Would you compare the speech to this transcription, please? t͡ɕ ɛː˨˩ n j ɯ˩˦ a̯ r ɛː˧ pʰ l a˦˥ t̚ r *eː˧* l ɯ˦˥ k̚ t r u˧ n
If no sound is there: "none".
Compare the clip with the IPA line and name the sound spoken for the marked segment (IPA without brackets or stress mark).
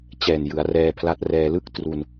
ɛː˧